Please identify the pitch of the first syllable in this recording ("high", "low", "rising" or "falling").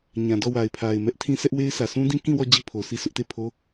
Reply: low